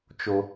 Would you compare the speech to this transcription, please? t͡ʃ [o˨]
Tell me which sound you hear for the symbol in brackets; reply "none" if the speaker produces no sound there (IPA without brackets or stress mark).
o˦